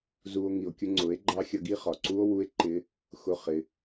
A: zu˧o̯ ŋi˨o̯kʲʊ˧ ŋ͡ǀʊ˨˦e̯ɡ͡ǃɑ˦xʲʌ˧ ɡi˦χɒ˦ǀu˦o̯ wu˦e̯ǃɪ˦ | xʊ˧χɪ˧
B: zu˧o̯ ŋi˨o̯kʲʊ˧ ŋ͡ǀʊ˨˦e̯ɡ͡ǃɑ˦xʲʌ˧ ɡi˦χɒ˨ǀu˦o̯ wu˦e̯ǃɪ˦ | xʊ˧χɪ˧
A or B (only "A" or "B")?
B